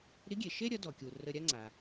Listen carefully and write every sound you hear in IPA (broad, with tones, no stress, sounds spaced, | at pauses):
ɾ i˧˥ ɡʲ e˩ ʃ e˥ ɾʲ ʌ˩˧ d ɔ˩ kʲ u˩ r ə˧ ɾʲ a˥ ŋ͡ǀ a˩